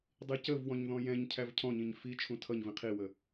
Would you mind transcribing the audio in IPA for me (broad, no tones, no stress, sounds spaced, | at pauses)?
dˤ i c ə v w ɔ̃ ɲ ð ɔ̃ j ɛ̃ ɲ cʰ æ v cʰ ɔ̃ ɲ ĩ ɲ f i t͡ʃʰ ũ tʰ ʌ ɲ v ĩ qʰ i w ə